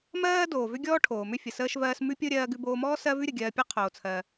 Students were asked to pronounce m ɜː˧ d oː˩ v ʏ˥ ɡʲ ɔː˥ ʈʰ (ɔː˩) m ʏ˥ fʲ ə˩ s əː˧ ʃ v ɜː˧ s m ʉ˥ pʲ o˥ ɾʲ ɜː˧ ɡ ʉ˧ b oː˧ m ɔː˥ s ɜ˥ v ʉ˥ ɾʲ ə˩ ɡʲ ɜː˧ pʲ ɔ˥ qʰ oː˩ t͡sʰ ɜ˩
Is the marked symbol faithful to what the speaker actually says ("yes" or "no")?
no